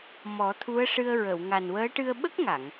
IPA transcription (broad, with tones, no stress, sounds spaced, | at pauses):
m ɔ˨˩˦ t̪ʰ u˧˥ ə̯ ʂ ɨ˧ ə̯ ɹ ə˨˩˨ w ŋ a˨˩ n w əː˧˥ ʈ ɨ˧ ə̯ ɓ ə˦˥ k̚ ŋ a˨˩˨ ŋ